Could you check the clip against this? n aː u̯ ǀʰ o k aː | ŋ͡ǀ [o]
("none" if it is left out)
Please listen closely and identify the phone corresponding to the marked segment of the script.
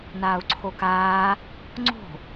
o̤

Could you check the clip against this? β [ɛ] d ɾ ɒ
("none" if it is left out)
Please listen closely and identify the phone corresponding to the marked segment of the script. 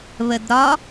ə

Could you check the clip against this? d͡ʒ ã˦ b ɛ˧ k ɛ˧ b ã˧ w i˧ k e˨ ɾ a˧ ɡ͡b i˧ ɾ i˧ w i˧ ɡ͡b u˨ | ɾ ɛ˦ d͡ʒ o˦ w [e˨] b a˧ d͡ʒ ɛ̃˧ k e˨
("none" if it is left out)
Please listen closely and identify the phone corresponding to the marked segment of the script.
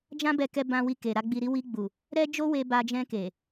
e˧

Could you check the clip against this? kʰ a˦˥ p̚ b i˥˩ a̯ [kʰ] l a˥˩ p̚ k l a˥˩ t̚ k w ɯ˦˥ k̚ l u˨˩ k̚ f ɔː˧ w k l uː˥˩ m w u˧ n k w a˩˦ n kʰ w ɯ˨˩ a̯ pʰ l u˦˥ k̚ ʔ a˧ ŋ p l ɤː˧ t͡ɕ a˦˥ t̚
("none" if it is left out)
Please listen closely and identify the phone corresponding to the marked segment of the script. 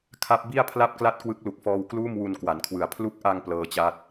pʰ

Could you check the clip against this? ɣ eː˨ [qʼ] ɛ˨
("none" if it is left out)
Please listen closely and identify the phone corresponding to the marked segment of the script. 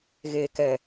k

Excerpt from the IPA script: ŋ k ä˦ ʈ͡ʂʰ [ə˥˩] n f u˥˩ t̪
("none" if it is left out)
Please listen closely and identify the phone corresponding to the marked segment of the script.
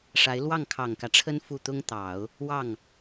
ə˥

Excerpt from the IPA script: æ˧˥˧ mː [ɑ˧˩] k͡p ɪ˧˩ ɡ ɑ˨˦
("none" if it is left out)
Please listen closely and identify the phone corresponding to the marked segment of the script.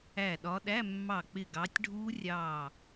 ɑ˧˩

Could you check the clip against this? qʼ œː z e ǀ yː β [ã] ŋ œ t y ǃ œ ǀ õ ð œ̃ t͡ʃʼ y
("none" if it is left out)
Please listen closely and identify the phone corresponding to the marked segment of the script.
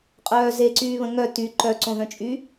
ə̃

